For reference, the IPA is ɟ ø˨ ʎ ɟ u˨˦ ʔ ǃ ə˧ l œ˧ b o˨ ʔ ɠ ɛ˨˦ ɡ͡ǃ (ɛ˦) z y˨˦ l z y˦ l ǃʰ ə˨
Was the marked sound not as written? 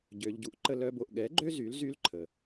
yes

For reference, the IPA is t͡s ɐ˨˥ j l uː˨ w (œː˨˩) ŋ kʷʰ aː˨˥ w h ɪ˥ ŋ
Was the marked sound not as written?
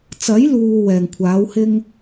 yes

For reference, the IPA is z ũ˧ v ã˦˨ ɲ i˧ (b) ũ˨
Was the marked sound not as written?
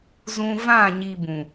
no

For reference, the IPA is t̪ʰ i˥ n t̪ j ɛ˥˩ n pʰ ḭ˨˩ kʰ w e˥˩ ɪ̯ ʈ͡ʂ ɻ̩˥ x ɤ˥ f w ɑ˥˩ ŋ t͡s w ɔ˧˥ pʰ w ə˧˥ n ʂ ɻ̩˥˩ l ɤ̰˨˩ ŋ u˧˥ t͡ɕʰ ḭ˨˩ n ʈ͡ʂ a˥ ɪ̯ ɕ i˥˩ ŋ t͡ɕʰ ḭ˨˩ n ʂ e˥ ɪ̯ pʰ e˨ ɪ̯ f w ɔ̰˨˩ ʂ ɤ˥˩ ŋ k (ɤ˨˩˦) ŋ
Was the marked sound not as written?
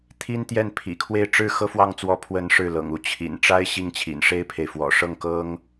yes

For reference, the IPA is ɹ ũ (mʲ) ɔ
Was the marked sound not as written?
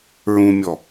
no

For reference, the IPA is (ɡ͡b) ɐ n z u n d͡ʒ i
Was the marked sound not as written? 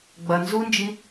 no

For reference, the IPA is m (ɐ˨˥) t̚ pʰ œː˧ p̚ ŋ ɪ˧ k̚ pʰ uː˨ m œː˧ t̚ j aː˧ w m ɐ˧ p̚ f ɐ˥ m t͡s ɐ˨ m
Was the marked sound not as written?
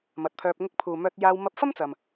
no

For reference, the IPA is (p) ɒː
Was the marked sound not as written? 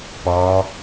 no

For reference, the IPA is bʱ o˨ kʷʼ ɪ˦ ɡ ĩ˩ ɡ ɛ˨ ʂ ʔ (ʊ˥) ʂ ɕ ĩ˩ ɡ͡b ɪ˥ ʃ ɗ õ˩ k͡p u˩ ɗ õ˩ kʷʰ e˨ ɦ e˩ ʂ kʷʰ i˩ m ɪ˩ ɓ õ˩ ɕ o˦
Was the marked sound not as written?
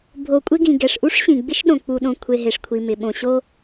yes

